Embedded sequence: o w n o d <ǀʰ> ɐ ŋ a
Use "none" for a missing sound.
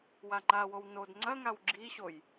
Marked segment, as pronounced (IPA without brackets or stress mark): ŋ͡ǀ